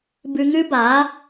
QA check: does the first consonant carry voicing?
yes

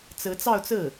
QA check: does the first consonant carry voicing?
no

